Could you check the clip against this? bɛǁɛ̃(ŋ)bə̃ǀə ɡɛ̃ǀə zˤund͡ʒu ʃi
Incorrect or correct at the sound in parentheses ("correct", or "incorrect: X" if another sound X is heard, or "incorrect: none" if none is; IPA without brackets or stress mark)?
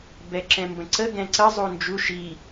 incorrect: m